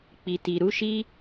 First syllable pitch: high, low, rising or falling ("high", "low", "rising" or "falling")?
low